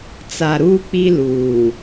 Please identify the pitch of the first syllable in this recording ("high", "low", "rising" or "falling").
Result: low